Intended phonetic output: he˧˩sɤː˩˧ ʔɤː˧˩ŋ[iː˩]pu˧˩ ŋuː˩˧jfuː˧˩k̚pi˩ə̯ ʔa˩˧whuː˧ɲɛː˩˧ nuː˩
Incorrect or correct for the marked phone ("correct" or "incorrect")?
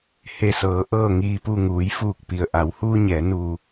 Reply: correct